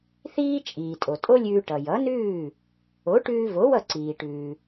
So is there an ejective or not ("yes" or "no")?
yes